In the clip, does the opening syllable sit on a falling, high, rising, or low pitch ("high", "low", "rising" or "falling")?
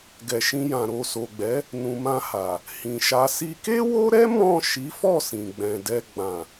low